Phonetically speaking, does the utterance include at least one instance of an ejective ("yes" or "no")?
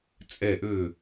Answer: yes